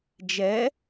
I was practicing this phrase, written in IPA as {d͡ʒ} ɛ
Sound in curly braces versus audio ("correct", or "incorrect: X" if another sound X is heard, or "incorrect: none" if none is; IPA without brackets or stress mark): correct